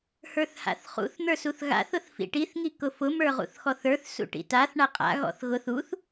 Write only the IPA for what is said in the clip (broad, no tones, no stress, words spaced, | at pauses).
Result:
hə˞θha̰θχṵθ n̪ə˞suθɣa̰θ ʊθfḭʈiθ ŋikʊfʊ mə˞ʁṵθxɔθə˞θ sṵʈḭtaθ ɳaqʼa̰ ɣɔ̰θɣʊθ uθ